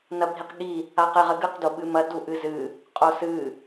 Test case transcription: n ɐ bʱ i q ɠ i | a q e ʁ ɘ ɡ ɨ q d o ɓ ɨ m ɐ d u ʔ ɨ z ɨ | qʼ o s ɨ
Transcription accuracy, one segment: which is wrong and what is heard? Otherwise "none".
none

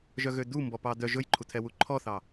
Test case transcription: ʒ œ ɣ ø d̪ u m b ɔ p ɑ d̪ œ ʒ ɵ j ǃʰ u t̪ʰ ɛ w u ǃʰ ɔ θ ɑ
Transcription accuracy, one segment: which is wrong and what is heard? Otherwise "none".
none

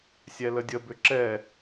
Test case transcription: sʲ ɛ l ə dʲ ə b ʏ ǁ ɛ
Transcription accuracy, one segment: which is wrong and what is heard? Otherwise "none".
none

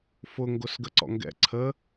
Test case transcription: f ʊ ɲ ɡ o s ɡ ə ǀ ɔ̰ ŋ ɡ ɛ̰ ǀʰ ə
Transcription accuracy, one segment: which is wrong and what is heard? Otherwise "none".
ɲ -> ŋ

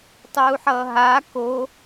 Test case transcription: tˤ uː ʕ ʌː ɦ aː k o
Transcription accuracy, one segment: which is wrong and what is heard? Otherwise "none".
ʕ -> ħ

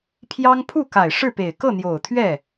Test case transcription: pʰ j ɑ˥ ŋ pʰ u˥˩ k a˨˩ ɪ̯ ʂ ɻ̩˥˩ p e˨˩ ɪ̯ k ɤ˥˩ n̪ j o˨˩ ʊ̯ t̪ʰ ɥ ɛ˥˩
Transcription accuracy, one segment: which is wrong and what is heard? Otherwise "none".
none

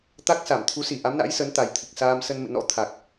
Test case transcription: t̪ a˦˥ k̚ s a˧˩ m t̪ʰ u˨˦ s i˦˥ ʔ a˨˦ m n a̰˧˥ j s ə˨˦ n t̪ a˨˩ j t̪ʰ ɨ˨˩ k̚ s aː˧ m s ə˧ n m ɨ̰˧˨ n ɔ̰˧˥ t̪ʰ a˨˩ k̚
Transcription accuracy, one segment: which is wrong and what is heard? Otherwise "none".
i˦˥ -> i˧˩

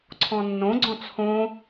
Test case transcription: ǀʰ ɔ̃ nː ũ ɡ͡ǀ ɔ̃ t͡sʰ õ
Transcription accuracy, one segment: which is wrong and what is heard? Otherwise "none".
ũ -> õ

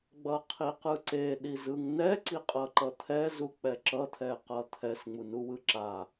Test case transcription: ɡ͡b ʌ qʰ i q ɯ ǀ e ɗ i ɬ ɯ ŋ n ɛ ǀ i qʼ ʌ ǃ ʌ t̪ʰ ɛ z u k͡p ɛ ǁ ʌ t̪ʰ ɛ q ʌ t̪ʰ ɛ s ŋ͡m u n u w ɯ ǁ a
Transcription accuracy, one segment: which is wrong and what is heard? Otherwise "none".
ɬ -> z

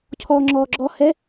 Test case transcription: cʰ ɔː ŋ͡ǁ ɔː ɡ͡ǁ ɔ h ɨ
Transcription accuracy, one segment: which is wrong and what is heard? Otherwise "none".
ɨ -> ɛ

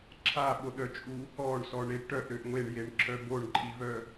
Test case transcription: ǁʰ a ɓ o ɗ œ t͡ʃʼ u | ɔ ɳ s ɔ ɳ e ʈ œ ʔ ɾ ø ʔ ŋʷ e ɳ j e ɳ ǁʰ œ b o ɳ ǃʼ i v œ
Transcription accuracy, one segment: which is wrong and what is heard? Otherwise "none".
none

